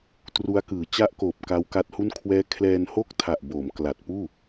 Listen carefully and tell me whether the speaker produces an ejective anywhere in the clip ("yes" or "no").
no